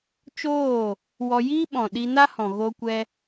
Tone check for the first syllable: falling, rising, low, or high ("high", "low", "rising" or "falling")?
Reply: falling